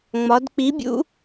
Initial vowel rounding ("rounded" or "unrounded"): rounded